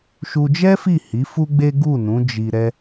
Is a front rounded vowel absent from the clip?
yes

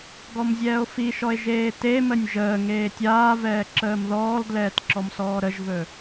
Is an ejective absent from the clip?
yes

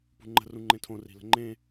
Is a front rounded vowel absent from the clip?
yes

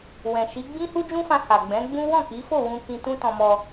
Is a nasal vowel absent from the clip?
no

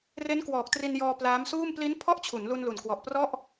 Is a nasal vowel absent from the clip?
yes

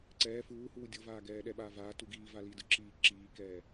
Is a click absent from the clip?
no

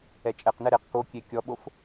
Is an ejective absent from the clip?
no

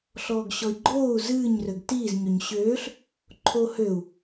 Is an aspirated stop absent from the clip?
no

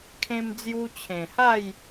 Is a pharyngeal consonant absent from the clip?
yes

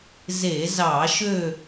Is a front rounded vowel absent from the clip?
no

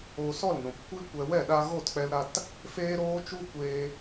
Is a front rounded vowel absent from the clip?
yes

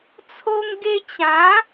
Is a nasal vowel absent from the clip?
no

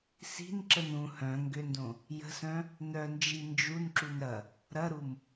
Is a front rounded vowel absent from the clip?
no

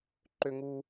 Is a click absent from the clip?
no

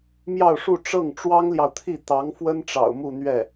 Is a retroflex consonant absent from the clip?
no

